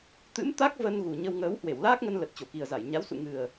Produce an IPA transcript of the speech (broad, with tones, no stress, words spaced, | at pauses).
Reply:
t̪ɨ̰˧˥mt̪a˦˥k̚ və˧n ɣu˨˩ɲə˧w ŋəː˨˦whwe˧˩wlaː˦˥k̚ŋə˧n lə˨˩t̚t͡ɕo˧˩ki˨˩ə̯za˧˩j ɲa˨˦wsṵ˧˨ŋɨ˨˩ə̯